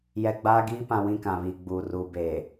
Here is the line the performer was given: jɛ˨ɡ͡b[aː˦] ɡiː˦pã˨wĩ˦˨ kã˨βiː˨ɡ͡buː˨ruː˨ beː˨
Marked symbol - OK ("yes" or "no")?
yes